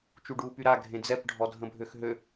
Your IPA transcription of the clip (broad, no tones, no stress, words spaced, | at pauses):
t͡ʃuɖuːpyɾa ɡʱẽd͡zɛp ɖʱɔdʱə̃bʱøxɦø